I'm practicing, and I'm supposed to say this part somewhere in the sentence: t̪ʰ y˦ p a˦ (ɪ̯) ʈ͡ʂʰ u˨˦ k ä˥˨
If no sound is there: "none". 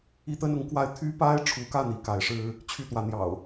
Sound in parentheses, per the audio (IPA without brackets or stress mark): ɪ̯